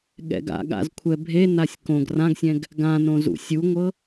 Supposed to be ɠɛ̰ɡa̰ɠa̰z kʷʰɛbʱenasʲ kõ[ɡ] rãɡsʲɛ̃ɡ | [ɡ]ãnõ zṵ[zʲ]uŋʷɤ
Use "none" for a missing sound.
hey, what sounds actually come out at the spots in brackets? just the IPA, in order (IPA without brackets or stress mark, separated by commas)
ɡ, ɡ, sʲ